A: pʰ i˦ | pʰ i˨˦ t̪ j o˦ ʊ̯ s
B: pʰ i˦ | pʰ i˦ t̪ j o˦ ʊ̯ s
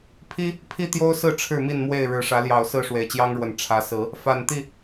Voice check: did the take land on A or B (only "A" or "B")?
B